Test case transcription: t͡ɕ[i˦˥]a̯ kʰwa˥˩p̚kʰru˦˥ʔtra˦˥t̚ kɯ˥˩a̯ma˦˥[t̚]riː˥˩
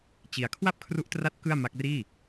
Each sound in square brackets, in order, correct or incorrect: incorrect, incorrect

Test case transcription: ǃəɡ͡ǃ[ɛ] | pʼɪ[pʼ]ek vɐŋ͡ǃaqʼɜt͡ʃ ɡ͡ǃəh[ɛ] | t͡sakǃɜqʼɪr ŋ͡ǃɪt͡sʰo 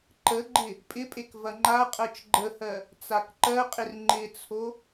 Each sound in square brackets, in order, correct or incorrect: incorrect, correct, incorrect

